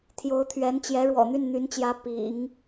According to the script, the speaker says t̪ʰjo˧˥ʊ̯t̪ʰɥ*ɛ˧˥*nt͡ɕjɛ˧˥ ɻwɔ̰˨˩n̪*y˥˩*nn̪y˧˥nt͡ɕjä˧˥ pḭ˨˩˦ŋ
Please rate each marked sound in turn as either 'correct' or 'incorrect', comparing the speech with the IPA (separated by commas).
correct, correct